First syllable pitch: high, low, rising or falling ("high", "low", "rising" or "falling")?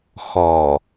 low